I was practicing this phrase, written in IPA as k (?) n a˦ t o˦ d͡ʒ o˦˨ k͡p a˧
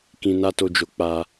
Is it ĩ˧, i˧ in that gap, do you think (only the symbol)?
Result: ĩ˧